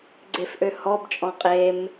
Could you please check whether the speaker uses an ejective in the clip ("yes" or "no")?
yes